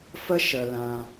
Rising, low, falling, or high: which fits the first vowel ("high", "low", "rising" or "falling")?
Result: high